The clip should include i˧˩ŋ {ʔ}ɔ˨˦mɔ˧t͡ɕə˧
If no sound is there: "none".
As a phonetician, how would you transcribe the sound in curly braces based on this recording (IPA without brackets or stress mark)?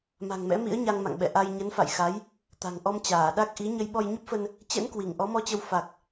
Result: ʔ